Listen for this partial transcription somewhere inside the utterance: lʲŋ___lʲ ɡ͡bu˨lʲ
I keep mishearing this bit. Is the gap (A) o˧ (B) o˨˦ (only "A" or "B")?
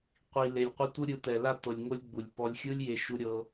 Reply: A